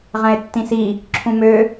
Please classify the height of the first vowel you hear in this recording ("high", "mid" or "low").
low